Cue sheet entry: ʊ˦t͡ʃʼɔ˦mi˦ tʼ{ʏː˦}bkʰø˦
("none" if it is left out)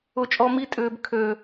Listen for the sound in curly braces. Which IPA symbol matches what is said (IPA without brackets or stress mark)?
ʏː˦